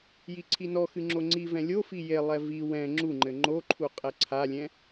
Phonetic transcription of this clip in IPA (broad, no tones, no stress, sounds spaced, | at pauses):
j i ǀʰ i n ɔ x ɨ ŋ͡ǁ o ŋ͡ǀ i v ɛ̃ lʲ o f i j e lˠ ɛ v i w ɛ̃ ŋ͡ǁ u ŋ͡ǃ ɘ ŋ͡ǃ o ǃʰ u qʼ ɛ ǀʰ a lʲ ɛ̃